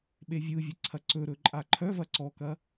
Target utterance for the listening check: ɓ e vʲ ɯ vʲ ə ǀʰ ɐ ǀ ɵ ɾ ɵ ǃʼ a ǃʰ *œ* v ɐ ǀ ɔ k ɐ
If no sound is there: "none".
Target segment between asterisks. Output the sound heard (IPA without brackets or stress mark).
œ